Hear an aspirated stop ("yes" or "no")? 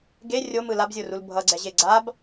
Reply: no